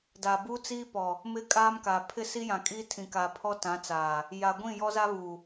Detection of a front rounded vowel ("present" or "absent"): absent